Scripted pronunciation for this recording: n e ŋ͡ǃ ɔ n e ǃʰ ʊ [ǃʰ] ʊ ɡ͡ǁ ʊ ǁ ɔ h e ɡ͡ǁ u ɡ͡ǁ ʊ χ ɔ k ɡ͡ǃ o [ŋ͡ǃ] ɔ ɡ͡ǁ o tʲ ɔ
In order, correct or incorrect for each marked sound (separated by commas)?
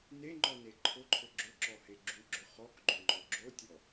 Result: correct, correct